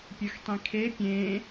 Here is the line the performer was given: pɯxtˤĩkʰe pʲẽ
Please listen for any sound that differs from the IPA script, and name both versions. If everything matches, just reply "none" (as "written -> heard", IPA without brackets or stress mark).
p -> pʲ